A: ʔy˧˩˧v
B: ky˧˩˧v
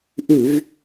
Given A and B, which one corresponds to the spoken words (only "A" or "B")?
A